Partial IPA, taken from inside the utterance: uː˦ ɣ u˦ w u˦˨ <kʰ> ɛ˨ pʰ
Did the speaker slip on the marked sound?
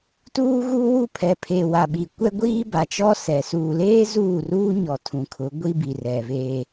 yes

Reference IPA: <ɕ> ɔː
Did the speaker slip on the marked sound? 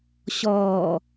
no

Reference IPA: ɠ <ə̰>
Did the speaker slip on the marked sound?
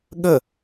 yes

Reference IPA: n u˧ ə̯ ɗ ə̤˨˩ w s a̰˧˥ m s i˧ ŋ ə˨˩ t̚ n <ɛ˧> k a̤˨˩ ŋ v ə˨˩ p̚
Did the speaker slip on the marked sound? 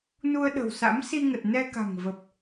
no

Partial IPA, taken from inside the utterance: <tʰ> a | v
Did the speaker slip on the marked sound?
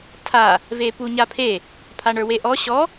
no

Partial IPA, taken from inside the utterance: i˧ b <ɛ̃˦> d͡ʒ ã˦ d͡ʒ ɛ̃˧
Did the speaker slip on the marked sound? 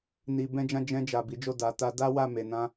no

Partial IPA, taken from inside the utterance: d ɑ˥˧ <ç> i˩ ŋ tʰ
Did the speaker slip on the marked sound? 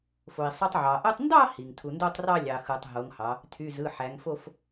yes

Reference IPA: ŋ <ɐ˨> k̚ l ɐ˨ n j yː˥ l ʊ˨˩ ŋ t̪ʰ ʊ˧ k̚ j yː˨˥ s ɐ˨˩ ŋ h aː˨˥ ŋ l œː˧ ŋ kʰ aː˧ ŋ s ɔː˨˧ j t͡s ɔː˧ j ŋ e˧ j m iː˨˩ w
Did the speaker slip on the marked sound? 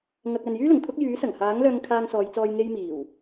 no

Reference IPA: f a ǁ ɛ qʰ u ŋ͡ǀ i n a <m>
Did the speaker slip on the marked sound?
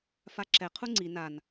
yes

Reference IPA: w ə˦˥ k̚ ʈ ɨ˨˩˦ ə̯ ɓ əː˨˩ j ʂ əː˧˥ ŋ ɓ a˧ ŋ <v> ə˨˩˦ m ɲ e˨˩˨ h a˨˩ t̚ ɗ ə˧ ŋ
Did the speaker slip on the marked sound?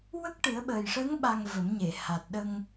no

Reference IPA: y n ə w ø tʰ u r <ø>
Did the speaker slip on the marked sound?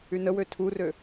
no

